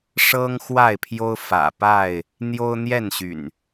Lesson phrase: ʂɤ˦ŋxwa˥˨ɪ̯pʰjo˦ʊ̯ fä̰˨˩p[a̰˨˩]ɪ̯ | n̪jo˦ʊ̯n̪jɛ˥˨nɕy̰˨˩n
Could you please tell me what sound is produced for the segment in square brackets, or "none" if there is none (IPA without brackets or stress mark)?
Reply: a˥˨